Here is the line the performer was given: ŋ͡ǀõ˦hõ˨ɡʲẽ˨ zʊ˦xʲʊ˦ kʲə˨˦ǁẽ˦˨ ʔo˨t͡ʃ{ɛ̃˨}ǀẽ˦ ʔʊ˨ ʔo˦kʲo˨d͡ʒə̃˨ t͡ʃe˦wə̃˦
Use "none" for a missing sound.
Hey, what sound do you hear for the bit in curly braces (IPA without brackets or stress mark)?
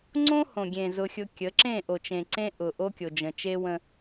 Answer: ẽ˨